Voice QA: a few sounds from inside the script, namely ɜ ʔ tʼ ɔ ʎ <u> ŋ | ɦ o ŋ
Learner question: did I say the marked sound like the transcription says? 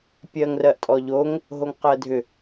no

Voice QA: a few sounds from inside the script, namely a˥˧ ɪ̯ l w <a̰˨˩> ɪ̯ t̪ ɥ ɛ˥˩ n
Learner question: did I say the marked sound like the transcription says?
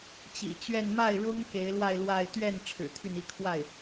no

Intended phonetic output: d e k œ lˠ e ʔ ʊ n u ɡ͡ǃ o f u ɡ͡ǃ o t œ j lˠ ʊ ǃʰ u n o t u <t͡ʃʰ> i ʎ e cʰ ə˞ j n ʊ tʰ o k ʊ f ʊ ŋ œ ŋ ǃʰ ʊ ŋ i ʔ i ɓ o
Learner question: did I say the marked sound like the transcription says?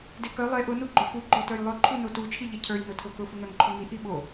yes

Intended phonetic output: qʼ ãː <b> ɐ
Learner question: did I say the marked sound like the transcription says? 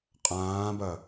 yes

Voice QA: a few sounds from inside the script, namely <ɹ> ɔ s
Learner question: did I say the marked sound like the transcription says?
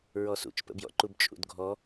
yes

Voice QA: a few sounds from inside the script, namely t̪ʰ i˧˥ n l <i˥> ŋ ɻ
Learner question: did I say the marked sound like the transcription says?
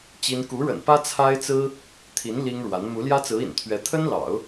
yes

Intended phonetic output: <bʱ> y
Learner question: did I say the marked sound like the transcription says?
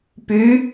no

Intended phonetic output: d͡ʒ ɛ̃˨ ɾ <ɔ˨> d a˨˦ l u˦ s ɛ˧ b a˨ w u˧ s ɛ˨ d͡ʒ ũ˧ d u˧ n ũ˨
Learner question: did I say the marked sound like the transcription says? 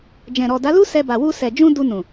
yes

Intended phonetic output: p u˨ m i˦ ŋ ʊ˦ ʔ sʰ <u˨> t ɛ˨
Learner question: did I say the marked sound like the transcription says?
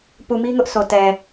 no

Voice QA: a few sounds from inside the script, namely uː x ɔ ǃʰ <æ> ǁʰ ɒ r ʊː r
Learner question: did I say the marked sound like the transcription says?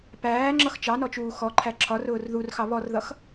yes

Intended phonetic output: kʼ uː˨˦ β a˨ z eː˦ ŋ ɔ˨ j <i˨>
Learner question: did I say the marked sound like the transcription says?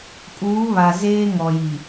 yes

